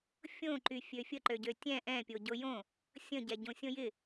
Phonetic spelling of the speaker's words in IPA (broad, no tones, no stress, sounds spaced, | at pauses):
fʲ õ ǃ y fʲ ø fʲ ə ǃ ø ɟ ø tʲ ɛ̃ ʔ ɛ̃ pʲ o ɟ o j õ | sʲ ə̃ ɟ ɛ ɟ õ sʲ õ j ɪ